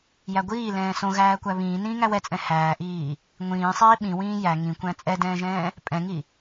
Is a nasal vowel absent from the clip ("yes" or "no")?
no